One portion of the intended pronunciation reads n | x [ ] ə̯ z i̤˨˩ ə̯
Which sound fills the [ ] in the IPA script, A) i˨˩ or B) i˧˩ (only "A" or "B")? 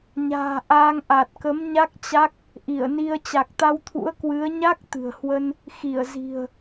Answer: B